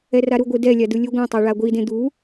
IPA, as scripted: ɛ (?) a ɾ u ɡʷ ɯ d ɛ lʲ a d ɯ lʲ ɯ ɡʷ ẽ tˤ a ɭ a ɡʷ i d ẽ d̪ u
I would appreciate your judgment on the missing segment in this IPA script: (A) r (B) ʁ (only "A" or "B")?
A